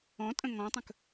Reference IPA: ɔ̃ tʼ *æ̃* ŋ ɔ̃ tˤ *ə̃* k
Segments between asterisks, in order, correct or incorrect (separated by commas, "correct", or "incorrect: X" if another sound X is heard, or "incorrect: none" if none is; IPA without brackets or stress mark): incorrect: ə̃, correct